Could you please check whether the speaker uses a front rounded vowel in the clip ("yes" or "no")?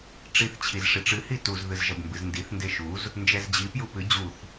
no